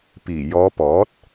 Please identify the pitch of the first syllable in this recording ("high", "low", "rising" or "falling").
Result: low